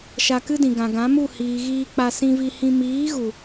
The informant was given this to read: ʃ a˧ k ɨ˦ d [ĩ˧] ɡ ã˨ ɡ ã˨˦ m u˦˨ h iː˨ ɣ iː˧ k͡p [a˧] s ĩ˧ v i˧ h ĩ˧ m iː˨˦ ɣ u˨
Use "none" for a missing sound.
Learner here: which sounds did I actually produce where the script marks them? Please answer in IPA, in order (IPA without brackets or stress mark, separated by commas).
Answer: ĩ˨, a˧